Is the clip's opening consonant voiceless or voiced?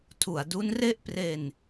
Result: voiceless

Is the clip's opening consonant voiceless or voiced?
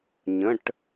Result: voiced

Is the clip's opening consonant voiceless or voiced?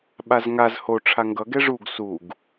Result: voiced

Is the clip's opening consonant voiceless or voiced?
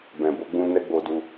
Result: voiced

